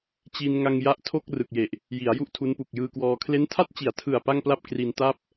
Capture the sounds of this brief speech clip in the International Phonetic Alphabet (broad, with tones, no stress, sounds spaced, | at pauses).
t͡ɕ i˧ n ŋ a˧ ŋ j a˦˥ ʔ tʰ o˥˩ k̚ r ɯ˨˩ k̚ j e˨˩ ʔ | j i˩˦ a̯ j u˥˩ ʔ tʰ u˦˥ n p u˨˩ k̚ j ɯː˧ k w ɔː˧ kʰ l e˦˥ n tʰ a˥˩ t̚ t͡ɕ i˨˩ a̯ tʰ ɯ˨˩ a̯ p a˥˩ ŋ p l a˥˩ p̚ k r i˧ n t a˥˩ p̚